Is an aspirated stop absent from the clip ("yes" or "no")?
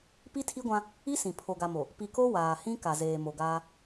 no